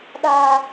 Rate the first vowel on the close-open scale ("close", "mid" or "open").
open